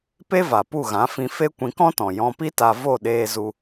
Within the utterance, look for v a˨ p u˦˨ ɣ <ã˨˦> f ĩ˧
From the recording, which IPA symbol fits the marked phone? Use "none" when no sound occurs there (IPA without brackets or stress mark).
ã˨˦